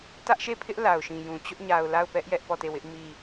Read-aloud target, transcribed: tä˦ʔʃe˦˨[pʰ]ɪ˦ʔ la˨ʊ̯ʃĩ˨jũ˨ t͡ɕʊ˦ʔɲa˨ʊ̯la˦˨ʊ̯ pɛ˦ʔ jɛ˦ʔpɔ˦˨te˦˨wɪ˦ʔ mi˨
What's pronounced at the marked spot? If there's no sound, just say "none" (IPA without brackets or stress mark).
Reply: pʰ